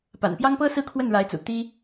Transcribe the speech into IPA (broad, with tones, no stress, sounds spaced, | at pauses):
p a̰˨˩ n p j ɑ˥ ŋ p ɤ˥ s ɹ̩˥˧ kʰ w ə˥˩ n ɻ a˧˥ ɪ̯ t͡s ṵ˨˩ t̪ i˥